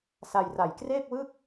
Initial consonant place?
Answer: alveolar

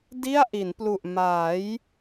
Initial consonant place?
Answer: alveolar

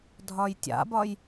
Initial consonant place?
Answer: alveolar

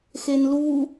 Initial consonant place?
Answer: velar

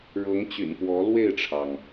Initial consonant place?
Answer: retroflex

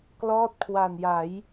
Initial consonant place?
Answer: velar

